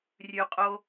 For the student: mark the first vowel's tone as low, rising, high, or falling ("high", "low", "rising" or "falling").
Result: low